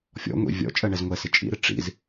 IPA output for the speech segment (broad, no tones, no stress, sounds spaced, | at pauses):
fʲ ɔ̰ ŋʷ ḭ vʲ ɔ̰ t͡ʃʼ ɜ ɳ ɛ z ŋʷ ɛ s ɪ t͡ʃʼ ḭ ɾ ɪ ʈ͡ʂ ḭ z